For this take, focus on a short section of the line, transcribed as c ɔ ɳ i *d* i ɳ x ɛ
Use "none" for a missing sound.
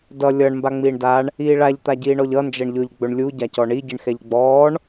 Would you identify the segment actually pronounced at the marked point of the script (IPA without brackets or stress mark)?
ɟ